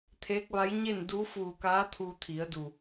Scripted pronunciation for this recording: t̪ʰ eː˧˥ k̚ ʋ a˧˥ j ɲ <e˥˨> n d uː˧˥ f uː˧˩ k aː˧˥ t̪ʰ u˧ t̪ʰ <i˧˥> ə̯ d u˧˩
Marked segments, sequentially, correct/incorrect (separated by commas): correct, incorrect